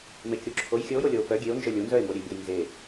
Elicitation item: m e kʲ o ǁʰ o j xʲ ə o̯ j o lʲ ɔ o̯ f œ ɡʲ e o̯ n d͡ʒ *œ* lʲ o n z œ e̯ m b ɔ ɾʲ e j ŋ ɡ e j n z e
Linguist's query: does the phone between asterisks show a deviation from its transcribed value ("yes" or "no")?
no